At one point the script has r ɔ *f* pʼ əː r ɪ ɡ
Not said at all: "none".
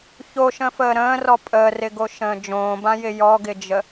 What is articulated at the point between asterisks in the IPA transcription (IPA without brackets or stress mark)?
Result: none